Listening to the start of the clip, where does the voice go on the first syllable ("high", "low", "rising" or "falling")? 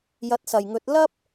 rising